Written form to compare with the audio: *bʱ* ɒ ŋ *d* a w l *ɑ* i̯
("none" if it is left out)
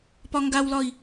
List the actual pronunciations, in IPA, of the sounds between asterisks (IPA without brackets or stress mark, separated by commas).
p, ɡ, ɒ